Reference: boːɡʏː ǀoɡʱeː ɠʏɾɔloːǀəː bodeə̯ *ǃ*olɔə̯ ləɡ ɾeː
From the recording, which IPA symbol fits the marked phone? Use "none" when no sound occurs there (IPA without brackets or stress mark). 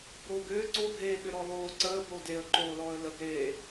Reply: ǃ